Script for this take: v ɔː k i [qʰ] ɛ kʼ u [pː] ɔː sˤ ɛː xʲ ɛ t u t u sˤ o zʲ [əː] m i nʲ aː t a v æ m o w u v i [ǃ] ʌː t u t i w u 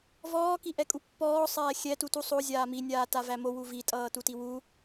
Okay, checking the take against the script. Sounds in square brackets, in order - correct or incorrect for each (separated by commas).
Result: incorrect, correct, incorrect, incorrect